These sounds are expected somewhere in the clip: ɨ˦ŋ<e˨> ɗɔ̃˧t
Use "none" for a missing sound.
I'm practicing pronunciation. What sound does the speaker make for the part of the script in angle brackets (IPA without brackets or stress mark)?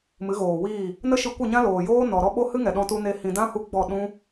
ɛ˨